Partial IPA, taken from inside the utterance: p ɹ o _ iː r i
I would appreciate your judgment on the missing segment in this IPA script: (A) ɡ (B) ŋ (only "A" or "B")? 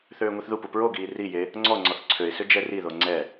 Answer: A